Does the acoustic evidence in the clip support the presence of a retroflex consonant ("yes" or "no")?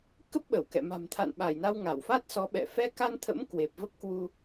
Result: no